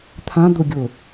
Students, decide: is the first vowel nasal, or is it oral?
nasal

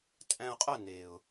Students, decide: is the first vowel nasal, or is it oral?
nasal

